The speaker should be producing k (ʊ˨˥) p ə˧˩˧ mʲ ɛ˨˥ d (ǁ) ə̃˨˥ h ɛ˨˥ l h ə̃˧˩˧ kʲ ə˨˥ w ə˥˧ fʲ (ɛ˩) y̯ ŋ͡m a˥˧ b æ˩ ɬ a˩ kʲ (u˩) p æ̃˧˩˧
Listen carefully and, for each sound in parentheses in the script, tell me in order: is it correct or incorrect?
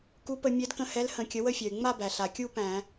incorrect: u˨˥, incorrect: k, correct, incorrect: u˥˧

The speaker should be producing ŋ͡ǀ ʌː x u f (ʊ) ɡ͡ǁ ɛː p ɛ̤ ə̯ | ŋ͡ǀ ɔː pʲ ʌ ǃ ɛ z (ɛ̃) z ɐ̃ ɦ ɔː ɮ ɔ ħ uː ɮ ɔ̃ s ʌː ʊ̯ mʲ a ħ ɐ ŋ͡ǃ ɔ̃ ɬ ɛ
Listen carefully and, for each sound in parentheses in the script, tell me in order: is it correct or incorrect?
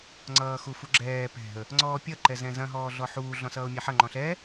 incorrect: u, correct

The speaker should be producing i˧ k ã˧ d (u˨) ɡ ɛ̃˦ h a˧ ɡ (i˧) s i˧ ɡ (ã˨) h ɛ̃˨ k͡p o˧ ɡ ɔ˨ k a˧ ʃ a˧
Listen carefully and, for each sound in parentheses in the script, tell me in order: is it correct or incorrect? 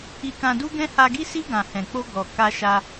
incorrect: u˦, correct, correct

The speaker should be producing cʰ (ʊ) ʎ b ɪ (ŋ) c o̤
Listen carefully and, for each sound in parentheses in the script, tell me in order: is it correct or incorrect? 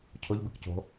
correct, incorrect: k

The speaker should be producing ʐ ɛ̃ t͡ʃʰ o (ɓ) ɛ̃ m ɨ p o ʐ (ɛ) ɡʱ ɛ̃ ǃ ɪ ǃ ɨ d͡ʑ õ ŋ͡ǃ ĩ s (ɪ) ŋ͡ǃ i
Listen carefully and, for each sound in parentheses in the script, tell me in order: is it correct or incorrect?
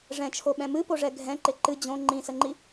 correct, correct, incorrect: ə

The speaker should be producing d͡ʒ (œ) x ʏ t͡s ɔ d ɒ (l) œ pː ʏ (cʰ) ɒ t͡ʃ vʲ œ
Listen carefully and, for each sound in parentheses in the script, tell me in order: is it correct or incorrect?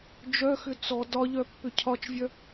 correct, incorrect: ʎ, correct

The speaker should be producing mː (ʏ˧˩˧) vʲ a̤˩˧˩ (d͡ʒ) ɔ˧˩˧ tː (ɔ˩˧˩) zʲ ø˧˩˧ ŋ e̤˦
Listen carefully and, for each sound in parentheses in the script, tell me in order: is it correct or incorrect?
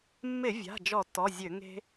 incorrect: ɪ˧˩˧, correct, correct

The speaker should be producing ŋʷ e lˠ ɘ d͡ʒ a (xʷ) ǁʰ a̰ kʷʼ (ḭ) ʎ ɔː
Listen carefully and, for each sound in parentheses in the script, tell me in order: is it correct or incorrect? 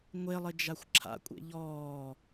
correct, incorrect: ḛ

